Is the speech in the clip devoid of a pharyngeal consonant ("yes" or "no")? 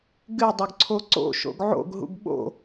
no